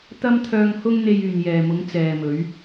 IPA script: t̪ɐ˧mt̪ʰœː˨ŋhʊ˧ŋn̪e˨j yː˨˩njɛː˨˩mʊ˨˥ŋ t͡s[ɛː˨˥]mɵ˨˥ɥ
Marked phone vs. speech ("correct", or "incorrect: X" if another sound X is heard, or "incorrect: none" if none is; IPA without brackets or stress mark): incorrect: ɛː˨